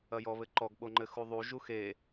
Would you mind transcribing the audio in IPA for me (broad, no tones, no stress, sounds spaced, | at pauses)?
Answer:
ɐ j ɔ β ɘ ǃ ɔ ɡ ɓ o ŋ͡ǃ ɘ x u ðˤ u ʒ u x e